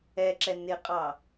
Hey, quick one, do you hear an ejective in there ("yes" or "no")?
yes